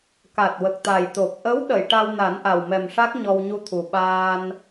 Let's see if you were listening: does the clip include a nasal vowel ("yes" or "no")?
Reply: no